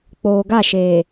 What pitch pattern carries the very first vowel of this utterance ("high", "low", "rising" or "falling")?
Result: low